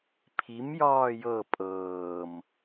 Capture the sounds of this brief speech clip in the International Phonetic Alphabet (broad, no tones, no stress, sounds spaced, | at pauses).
pʰ i m j ɒː j ɤ pʼ ɤː m